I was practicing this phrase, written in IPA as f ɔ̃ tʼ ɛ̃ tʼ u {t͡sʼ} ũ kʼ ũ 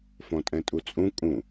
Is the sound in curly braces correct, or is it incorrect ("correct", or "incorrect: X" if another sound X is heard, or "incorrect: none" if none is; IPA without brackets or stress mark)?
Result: correct